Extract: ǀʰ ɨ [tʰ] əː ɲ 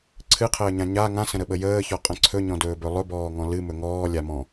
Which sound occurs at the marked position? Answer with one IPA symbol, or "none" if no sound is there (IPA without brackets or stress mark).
qʰ